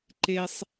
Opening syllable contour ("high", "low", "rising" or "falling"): high